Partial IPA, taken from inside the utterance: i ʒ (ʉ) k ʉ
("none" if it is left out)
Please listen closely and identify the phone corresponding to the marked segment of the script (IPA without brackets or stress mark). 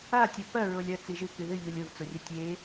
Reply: ɨ